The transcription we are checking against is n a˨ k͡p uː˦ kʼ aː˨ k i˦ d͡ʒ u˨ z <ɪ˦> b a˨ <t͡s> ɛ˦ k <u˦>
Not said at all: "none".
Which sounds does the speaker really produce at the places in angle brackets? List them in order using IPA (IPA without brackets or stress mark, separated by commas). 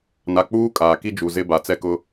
ɪ˦, t͡s, ʊ˦